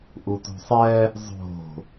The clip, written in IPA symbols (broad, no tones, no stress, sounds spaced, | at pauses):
ʔ u t ṳ sˤ ɛ | zˤ o̤